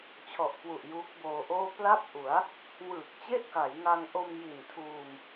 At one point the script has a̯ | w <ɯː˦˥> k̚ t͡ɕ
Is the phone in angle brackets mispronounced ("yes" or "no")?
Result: yes